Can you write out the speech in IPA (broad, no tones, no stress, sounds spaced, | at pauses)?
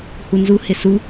h u n z u h ɪ s u